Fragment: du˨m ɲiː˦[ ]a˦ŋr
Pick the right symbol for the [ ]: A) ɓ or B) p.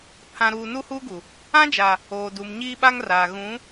A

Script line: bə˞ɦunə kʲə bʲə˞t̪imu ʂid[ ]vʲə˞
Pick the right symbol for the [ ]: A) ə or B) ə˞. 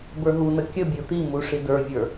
B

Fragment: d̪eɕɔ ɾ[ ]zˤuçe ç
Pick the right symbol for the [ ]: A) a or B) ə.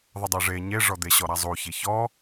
A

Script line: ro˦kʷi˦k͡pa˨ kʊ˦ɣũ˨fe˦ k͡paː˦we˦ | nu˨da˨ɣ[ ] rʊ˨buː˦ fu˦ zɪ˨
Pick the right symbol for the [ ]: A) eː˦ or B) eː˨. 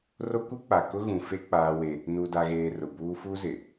B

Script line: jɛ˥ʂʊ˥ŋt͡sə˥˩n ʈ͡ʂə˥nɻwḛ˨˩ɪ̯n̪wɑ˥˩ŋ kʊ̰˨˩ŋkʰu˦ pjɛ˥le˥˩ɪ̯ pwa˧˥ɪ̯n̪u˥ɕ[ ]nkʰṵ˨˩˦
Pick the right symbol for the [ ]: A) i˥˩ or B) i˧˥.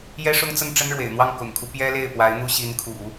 B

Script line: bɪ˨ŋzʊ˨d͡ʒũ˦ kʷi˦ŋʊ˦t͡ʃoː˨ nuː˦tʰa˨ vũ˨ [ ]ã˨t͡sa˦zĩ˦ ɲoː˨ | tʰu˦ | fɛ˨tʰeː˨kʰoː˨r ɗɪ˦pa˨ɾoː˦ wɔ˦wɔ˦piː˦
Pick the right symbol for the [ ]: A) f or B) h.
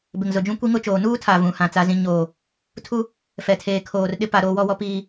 B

